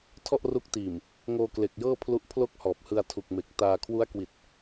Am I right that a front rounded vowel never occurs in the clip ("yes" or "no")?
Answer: yes